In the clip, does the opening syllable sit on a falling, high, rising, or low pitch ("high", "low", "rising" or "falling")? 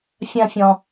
high